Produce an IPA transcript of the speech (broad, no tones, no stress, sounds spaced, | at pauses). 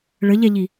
ɭ ə ʎ ɛ ʎ i